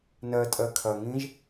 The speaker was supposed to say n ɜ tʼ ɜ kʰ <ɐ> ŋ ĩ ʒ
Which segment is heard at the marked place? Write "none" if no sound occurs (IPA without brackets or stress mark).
ɐ